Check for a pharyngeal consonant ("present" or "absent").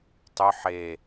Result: present